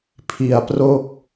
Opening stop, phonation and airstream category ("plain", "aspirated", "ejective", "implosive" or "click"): aspirated